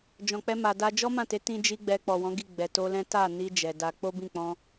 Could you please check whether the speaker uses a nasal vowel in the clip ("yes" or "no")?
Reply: yes